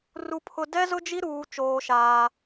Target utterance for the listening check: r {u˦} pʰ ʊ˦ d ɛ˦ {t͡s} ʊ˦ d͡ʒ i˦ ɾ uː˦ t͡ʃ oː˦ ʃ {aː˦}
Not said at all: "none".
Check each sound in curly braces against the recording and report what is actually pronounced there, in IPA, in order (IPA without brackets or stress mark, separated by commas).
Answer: u˦, z, aː˦